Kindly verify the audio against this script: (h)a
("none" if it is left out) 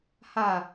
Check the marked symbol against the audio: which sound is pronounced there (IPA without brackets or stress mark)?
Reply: h